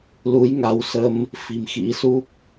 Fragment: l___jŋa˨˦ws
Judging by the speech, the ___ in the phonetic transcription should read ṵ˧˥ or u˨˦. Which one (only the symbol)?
u˨˦